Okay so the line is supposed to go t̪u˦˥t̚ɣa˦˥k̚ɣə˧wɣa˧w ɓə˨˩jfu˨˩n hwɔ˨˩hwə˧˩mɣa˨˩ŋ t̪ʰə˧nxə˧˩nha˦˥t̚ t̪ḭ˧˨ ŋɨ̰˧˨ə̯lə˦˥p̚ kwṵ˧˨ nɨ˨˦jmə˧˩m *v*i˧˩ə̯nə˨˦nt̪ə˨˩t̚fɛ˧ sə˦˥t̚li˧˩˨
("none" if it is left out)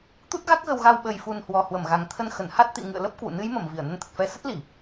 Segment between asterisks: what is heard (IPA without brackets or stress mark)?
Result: v